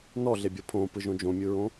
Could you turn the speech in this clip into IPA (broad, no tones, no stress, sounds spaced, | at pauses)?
n ɔ ɮ e bʲ ɤ pʰ õ p ɯ ʒ õ d͡ʒ õ mʲ ɯ ɹ õ